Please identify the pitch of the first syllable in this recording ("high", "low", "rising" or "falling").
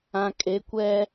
low